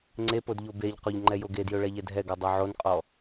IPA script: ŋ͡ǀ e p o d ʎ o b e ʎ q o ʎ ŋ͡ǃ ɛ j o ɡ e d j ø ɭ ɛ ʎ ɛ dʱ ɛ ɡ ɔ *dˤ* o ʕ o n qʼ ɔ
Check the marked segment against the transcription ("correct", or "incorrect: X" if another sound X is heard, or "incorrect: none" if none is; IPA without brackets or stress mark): correct